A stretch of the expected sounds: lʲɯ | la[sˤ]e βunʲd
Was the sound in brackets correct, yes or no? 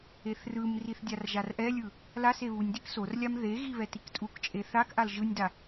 no